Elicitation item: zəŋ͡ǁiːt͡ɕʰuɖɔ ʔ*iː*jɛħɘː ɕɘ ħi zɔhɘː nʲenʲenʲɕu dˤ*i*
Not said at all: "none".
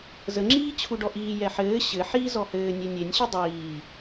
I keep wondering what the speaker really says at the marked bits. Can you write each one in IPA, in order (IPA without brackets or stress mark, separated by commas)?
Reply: iː, iː